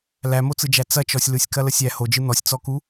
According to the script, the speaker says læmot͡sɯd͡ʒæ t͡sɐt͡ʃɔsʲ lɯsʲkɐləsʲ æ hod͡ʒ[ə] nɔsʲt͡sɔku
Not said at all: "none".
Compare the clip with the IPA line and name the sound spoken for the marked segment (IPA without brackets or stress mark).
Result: ɯ